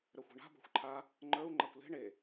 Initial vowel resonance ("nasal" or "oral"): oral